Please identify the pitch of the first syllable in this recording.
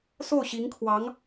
falling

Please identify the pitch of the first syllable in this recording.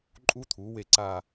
high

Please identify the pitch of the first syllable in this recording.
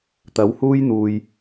rising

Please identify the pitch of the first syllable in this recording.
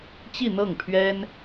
falling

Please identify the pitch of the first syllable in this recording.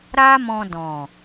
high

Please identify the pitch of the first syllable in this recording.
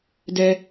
high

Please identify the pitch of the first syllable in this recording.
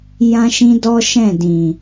high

